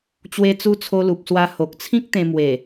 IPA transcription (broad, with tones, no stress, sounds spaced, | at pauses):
t͡ɕ w e˧ t͡s u˧ t͡sʰ o˧ l u˨ p̚ s w a˧ h o˨ k̚ t͡sʰ ĩ˦ k̚ t̪ ẽ˧ m w e˨˩